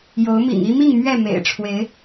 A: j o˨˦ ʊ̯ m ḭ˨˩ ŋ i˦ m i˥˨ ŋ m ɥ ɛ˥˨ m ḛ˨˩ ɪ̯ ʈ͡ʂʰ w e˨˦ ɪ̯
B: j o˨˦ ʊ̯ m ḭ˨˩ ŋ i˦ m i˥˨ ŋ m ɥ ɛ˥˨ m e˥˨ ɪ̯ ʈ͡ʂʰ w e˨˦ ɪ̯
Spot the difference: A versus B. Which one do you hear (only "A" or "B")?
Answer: A